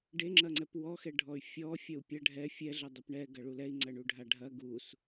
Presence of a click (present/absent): present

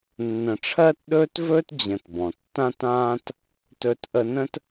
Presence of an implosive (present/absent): present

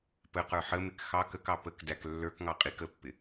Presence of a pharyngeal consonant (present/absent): present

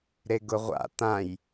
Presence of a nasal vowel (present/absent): present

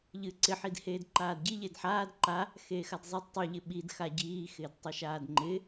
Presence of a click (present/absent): present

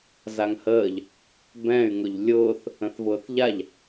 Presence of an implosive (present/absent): absent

